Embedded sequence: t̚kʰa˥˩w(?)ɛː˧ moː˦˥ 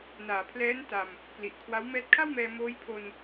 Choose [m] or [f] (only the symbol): m